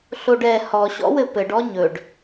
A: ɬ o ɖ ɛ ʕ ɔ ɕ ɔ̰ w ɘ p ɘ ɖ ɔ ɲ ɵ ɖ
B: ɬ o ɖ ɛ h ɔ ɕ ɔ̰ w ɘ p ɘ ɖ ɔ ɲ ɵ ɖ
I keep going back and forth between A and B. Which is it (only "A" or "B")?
B